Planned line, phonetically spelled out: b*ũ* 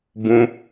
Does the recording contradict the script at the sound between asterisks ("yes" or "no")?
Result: no